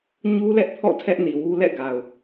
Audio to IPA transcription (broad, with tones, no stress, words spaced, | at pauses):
ɲu˦ lɛ˦ʔpʰɔ̰˦˨ tʰɛ˦ʔni˨wu˦ lɛ̰˦˨ ɡa˨ʊ̯